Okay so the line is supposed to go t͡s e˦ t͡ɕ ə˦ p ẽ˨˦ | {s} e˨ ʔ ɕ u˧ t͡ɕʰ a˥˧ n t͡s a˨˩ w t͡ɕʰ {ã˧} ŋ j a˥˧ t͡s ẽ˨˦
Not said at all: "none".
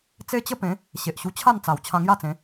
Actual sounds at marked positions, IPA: ɕ, ã˧

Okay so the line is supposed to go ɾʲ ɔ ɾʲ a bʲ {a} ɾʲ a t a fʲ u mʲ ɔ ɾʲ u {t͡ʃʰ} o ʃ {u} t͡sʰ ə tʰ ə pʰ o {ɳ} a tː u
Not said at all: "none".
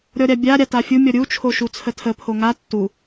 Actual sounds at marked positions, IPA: a, t͡ʃʰ, u, ŋ

